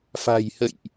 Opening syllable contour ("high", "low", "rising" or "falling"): low